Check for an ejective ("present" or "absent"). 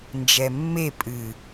present